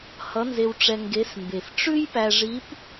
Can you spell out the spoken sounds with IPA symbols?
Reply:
h ʌ˧˥ n z e˧ w ʈ͡ʂ ɛ˧ ŋ ɡ e˧˥ s m b e˨˩ f ʈ͡ʂ ʉ˥ j p æ˧ ʐ i˧˥ p

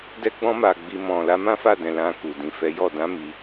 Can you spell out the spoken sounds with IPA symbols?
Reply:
d ɛ˧ ɡ͡b ɔ̃˧ m a˨ ɡ͡b i˨ m ɔ̃˨ l a˨˦ m ã˦ f a˦˨ d ɛ̃˨ l ã˧ k u˨ d ĩ˨ f ɛ˨˦ j ɔ˦˨ d ã˨˦ m i˧

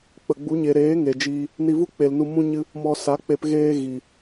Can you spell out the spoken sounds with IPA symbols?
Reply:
k͡p ə˨ ɡ͡b u˨˦ ɲ e˨ ɾ eː˨˦ ŋ e˨ d͡ʒ iː˦ | n i˧ v u˦ k͡p e˨ l n u˧ m ũ˦ ɲ ɨ˦ | m ɔ˧ s a˨˦ k͡p e˧ p ɣ eː˦ ɣ i˨

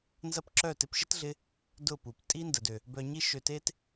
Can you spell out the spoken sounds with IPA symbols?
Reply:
n z ɐ˦ p ǁ œ˦˨ t ɪ˧ p ʃ ɪ˦ t ɮ ɪ˧ | d ʊ˦˨ p u˨ p tʼ i˦ n d ə˨ d ø˨ | b œ˨ ɲ i˧ ʃ ø˨ t e˦ t

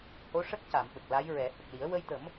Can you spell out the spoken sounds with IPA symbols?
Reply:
h o˧˥ ʂ ə˦˥ k̚ c a˨˩˨ m ɓ ə˨˩ k̚ l a˧˥ j ɹ ɛ˨˩˦ h ə˨˩ k̚ l i˨˩˦ ə̯ w ə˧ j t̪ ə˨˩˦ m

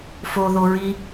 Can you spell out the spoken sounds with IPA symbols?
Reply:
f o ð o ɹ i

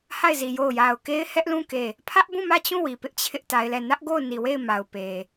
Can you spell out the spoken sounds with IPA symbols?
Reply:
h a˦˨ ɪ̯ z i˨ j o˦˨ ʊ̯ j a˨ ʊ̯ k e˦ ɪ̯ h ɛ˦ ʔ l ũ˦˨ k e˦˨ | pʰ ä˦ ʔ b ũ˦˨ m ä˦˨ t͡ɕ ũ˦˨ w i˨ p ɪ˦ ʔ t͡ɕʰ ɪ˦ ʔ t a˦ ɪ̯ l ɛ˦˨ n ä˦ ʔ ɡ o˦˨ ʊ̯ n i˨ w e˦˨ ɪ̯ m a˨ ʊ̯ p e˨

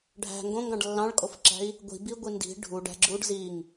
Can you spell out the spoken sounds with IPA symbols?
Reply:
ɖʱ æ̤ ŋ ɡ õ ŋ ɡ ɑ̃ ɖ lː ɑ̃ ɭ kʼ o f ǁ æ̤ i̯ | ɡʷ i̤ b i ɡʷ i n d i̤ ɖʱ u ɖ æ̤ ɡ͡ǁ u ɖ z i ŋ

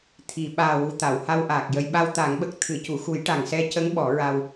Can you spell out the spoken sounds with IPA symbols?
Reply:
t̪ʰ i˨˩˨ ɓ aː˨˩ w u˨˩ t̪ a˨˩˨ w h a˧ w ʔ aː˨˩ k̚ j ə˧ j ɓ a˧ w t̪ a˨˩˦ ŋ ɓ ə˨˩ k̚ t̪ʰ ɨ˨˩˨ c u˨˩˨ x u˨˩˦ j ʈ a˨˩ ŋ s ɛ˧ c ə˧˥ ŋ ɓ ɔ˨˩˦ ɹ a˧ w

